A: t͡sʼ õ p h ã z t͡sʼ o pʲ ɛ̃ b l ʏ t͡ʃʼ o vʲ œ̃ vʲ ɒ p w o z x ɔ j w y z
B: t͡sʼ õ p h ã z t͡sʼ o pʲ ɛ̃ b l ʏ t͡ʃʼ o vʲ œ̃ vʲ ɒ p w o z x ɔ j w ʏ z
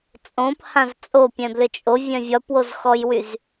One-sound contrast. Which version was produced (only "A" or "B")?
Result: A